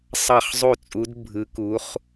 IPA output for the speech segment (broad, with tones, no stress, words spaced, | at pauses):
sˤɑ˥˩χzˤu˥˩t͡sʼu˧˥d bʱɯ˧˥ku˧˥χ